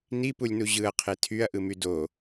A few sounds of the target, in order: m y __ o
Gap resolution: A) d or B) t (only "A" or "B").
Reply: A